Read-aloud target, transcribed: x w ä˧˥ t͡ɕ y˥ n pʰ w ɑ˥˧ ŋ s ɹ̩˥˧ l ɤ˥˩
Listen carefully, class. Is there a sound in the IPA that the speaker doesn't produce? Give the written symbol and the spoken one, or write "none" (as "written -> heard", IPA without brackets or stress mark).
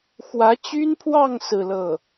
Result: none